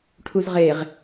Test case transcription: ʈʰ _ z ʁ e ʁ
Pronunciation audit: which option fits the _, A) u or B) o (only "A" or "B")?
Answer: A